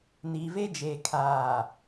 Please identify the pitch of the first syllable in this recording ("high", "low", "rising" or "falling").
low